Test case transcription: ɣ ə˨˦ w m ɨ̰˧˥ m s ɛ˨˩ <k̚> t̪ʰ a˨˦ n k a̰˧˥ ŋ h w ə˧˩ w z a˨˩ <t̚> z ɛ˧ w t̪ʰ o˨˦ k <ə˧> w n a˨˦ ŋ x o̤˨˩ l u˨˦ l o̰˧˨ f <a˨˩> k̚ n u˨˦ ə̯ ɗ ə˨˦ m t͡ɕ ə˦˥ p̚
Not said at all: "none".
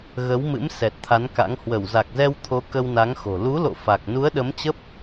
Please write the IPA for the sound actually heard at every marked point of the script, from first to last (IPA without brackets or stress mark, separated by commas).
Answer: t̚, k̚, ə˧, a˨˩